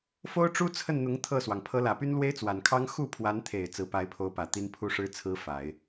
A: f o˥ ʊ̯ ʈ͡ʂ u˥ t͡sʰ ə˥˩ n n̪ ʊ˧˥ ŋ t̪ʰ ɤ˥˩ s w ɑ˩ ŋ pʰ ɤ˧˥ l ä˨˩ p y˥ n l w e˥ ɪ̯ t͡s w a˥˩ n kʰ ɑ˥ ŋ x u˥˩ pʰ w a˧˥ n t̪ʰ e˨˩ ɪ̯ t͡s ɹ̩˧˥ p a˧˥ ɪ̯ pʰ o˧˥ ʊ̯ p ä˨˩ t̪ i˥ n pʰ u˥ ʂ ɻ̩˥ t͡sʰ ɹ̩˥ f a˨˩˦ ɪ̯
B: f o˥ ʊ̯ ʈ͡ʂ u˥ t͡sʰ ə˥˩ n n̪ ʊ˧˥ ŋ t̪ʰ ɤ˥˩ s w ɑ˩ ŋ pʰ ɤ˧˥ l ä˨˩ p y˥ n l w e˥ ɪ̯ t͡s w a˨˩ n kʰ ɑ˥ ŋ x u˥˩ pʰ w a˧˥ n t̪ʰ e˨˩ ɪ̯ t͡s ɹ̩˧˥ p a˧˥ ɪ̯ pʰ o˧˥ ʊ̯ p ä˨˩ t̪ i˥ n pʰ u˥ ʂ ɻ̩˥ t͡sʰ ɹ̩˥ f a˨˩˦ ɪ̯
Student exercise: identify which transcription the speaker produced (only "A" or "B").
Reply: B